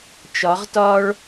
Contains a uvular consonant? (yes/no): yes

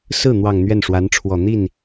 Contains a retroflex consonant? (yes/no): yes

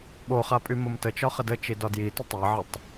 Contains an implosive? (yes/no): yes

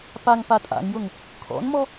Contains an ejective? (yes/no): yes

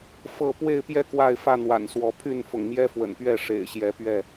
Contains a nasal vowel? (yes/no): no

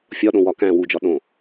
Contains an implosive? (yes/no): yes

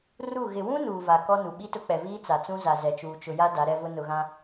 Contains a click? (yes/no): no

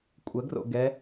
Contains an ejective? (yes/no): yes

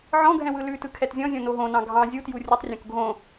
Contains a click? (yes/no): no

